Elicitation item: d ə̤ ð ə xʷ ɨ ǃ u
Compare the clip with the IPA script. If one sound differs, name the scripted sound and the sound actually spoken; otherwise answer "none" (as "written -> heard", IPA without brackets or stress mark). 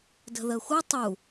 ǃ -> tˤ